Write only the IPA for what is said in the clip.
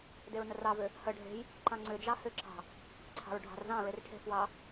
d e ɹ n ə r ɑ v ʏ | h ə ɖʱ e̤ j | ǃ ɑ̃ ŋ͡ǀ ʏ d͡ʒ ɑ h ʏ ǁ ɑ̤ | ǀʰ ɑ̤ ɹ ɖʱ ɑ̤ r z ɑ̃ ɹ e r ʈʰ e̤ f w ɑ

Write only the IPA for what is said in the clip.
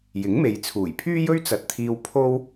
j ɪ˨˥ ŋ m e˨ j t͡sʰ uː˨˩ j pʰ yː˥ j ɵ˥ ɥ t͡s ɐ˨ t̚ t̪ʰ iː˧ w pʰ o˥ w

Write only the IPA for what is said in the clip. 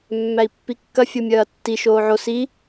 mː æ i̯ pː i kː ɐ fʲ o mʲ ɐː tː i ʃ oː ʕ o s i

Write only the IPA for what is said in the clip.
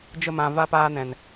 d͡ʒ ə˧ m ã˨ v aː˧ p aː˧ n ɛ̃˨ n

